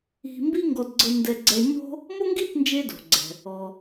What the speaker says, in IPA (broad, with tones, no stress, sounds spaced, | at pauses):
i̤˧ m b i˥ ŋ ɡ ɔ˧ d ɡ͡ǀ ɤ˧ n d ɛ˧ ɡ͡ǀ ɛ˧ ɲ o̤˥ | m o˥ ŋ ɡ i˥ t n d͡ʒ e˧ d o̤˩ ɡ͡ǀ ɛ̤˩ | ɔ˩